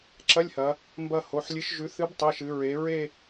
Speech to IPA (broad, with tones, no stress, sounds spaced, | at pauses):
ǁ ɐ˧˥˧ lʲ h ɐ˩˧ | m b ɐ˦˨ h o˩˧˩ ħ lʲ ɨ˨˥ ʃ ʒ ʉ˨˥ θ ɨ˨˥ b tˤ i˩˧˩ ʃ ɨ˩˧ ɹ e˩˧ ɹ e˦˨